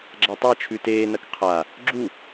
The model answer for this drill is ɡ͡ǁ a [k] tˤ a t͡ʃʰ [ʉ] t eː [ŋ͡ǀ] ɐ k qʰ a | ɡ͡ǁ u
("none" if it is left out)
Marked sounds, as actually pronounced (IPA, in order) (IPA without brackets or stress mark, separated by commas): none, ʉ, n